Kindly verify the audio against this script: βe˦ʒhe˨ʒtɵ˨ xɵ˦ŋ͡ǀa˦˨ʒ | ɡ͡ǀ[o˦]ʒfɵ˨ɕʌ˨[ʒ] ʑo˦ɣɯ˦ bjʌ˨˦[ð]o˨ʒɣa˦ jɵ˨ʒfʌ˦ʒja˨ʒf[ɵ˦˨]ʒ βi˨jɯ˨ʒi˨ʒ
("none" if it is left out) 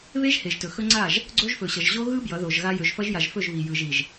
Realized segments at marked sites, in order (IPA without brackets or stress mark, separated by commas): o˦, ʒ, ð, ɵ˦˨